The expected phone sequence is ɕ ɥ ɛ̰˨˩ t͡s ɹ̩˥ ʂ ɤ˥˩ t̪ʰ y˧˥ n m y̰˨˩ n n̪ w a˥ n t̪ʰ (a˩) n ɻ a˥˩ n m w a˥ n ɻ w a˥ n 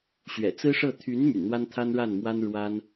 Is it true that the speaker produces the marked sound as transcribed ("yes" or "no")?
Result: no